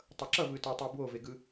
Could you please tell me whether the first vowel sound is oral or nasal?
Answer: oral